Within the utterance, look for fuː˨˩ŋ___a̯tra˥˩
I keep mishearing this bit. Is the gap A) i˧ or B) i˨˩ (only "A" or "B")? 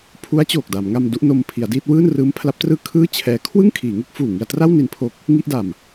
A